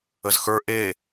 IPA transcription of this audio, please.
ə z x ə˞ ʔ e

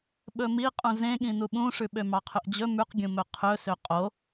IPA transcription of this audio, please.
ɓ ɵ m i qʼ ũ z ẽ ɠ ĩ n u ɓ ũ ʂ ʉ ɓ ø m ɑ qʰ ɵ ʔ d͡ʑ ɵ m ʉ q ɡʲ ũ m ɵ qʰ ɵ s ø qʼ o

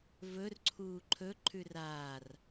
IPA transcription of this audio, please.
v ɵ r ǀʰ uː ǃʰ ɵ ǃʰ ʉ r aː r

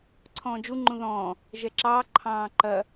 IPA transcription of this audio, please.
ǀʰ ɔ̃ː d͡ʒ u ŋ͡ǃ ũ ð ɔ̃ː | ʒ ɛ ǁ ɑː ǃʰ ɑ̃ː ǃ ɐ

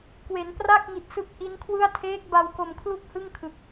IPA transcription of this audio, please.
k w e˩˦ n p r a˥˩ k̚ ŋ i˨˩ t̚ s ɯ˦˥ k̚ ʔ i˦˥ n kʰ w ɯ˥˩ a̯ tʰ eː˦˥ k̚ b a˧ w k o˧ m kʰ l u˥˩ k̚ h ɯ˥˩ ŋ kʰ ɯ˨˩ k̚

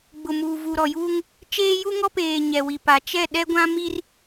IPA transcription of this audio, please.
ɡ͡b ʊ˨ m uː˨ v u˨ ɾ ɔ˨ j uː˦ ŋ | t͡ʃ eː˦ j u˦ ŋ ɔ˦ p eː˨ ɲ ɛ˨ w i˨ p a˨ t͡ʃ ɛ˦˨ ɗ ɛ˦ ɡʷ ã˦ m i˦ r

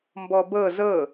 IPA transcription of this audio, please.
m b ɔ b ɤ z ɤ

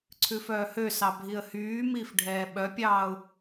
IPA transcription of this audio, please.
ǀʰ ʉ f œː h ø s ɑ bʱ i ə̯ h yː m iː f ɖʱ ɛː ɓ œ pʲ ɑː ʊ̯

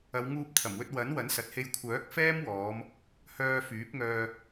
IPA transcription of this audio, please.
ɐ˨˧ w ŋ uː˧ p̚ t̪ʰ ɐ˨˩ m w ɵ˧ t̚ w ɐ˨˥ n w ɐ˨˥ n s ɐ˨ t̚ h e˧ j kʷʰ œː˨˥ k̚ f ɛː˥ m w ɔː˨˧ m | h œː˧ f yː˨˥ p̚ ŋ œː˧

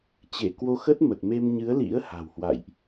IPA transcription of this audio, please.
t͡ɕ e˧˩ k w o˧ x ə˦˥ t̚ m ə˨˩ t̚ m e˧ m ɲ ɨ˨˦ ə̯ l ḭ˧˥ ə̯ h a̤˨˩ w h w a̰˧˨ j ʔ

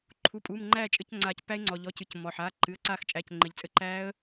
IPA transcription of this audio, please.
ǃʰ u˩˧˩ pʼ uː˩˧˩ m ŋ͡ǃ æː˦˨ t͡ʃʼ ɘ˦˨ c ŋ͡ǀ aː˨˩˦ c pː æ˦˥ ɪ̯ ŋ͡ǀ ɔ˩ ʎ ɔ˩˧˩ c ɨ˩˥ c mː ɔ˩ ħ aː˩˧˩ ǃ ɨ˩˧˩ ə̯ ǀ aː˦˨ x t͡ʃʼ æ˩˧˩ c ŋ͡ǃ ɘ˩ ʎ t͡sʼ ɘ˦˥ ǃ æː˦˥ ə̯

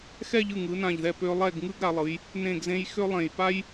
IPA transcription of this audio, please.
x ɛ˥˧ ʎ ɯ˧˩ ŋ ɯ˩˧ n ã˧˩ ʎ ð ɛ˧˩ p ø˧ lˠ ɛ˥˧ ɡ ŋ ɯ˥ ɡ ɾ a˩˧ lˠ ɯ˩˧ j | n ẽ˧˩ ɡ z ẽ˧ j x ø˥ lˠ ẽ˧˩ j p a˥ j

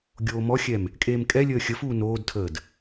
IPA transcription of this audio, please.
ɡʲ oː m ɔ xʲ ɛ m | kʼ eː m kʼ ɛ lʲ əː xʲ ə f uː n oː d tʰ əː d

